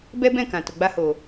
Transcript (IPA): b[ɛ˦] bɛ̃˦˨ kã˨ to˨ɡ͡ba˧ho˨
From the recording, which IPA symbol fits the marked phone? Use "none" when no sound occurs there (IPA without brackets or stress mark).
ɛ˦